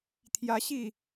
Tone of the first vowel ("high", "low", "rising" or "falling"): rising